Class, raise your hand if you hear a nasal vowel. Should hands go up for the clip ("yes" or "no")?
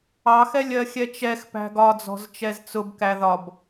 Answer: no